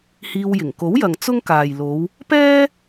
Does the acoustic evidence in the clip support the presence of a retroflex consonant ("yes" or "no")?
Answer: no